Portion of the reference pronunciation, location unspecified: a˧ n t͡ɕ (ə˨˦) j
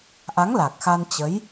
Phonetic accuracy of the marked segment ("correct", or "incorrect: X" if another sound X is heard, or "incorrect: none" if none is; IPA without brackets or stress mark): correct